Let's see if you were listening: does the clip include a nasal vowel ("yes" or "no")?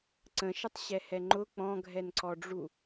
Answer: yes